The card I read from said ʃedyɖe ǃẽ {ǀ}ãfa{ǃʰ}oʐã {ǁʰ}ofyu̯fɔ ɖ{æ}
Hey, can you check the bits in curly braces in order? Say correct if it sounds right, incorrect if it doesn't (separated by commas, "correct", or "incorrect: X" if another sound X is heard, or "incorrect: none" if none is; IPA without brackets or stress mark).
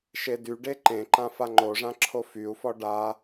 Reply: incorrect: ǃ, incorrect: ŋ͡ǃ, correct, incorrect: a